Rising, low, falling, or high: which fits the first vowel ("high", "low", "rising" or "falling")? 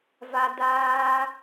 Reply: high